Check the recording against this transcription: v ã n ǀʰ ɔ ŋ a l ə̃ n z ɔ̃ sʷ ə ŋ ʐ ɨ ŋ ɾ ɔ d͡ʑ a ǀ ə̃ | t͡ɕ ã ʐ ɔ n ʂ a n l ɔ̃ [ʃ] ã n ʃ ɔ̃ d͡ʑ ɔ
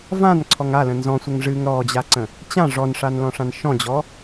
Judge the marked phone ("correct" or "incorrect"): incorrect